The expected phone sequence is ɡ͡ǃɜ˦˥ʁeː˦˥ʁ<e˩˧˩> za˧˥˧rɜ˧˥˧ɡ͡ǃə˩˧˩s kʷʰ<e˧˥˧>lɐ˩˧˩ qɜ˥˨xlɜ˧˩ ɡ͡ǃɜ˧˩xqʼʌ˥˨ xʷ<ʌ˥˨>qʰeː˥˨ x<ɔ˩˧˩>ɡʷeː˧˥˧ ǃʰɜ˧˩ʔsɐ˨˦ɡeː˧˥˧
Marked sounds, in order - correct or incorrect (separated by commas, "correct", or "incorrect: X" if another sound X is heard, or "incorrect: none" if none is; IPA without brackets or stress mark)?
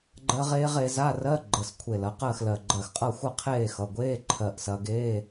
incorrect: e˨˦, incorrect: e˧˩, correct, incorrect: ʌ˩˧˩